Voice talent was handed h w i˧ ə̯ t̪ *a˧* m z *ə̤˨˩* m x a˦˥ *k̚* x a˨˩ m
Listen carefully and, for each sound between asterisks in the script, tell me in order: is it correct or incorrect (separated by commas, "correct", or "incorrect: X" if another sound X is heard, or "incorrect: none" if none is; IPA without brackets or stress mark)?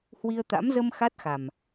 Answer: incorrect: a̰˧˥, incorrect: ə˧, incorrect: t̚